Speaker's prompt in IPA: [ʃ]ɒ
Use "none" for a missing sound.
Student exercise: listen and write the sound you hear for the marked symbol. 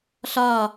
ɬ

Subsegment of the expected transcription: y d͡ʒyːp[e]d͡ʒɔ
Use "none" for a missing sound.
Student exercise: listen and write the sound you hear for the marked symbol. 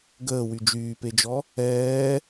e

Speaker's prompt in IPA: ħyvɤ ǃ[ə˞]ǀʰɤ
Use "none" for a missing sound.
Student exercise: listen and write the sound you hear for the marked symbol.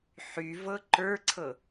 ə˞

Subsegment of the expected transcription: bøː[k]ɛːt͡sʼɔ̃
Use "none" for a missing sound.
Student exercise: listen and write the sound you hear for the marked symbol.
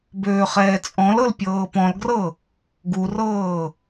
χ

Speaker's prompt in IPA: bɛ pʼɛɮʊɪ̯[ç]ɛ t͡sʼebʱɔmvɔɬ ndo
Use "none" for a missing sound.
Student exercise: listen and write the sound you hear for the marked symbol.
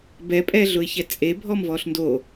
ç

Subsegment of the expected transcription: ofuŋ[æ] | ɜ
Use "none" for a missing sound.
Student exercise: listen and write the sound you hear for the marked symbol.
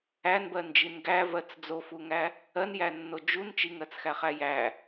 æ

